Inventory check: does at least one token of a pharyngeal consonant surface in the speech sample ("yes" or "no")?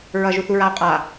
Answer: no